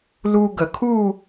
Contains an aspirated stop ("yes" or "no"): yes